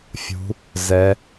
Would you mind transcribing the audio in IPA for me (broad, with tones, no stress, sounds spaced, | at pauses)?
fʲ ṳ˩˧ | z ɛ˩˧